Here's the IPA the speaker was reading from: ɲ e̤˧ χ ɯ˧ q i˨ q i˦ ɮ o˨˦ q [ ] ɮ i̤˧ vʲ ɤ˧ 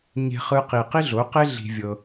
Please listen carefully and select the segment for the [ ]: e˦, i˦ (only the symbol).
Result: e˦